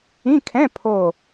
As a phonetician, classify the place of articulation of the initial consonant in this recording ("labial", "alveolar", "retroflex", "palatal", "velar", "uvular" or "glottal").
velar